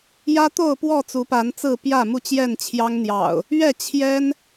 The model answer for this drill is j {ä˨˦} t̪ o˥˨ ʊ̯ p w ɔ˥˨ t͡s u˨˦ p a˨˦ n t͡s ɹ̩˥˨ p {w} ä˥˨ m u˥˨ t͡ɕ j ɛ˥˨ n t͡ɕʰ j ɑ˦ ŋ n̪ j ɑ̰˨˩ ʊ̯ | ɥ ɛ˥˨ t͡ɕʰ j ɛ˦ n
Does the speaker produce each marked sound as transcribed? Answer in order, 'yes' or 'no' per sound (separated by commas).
no, no